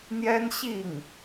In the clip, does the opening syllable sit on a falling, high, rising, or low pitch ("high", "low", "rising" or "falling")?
high